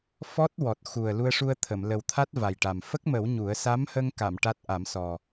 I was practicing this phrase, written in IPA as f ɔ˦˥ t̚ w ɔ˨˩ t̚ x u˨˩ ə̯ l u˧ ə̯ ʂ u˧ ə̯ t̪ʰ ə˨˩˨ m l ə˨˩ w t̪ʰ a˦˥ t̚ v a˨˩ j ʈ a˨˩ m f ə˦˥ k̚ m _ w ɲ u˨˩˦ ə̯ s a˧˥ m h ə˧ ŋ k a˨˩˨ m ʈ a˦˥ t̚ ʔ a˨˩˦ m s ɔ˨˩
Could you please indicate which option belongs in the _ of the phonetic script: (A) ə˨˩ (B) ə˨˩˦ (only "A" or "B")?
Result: B